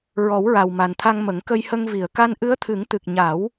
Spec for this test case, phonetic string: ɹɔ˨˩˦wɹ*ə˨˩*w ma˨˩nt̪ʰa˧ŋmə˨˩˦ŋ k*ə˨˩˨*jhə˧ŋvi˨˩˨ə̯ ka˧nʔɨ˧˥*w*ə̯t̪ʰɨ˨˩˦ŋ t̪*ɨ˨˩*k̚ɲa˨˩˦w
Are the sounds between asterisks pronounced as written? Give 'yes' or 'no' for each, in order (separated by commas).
no, no, no, yes